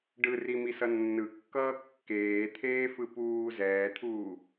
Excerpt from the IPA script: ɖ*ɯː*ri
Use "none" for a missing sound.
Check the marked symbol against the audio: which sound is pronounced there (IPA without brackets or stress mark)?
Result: ɯ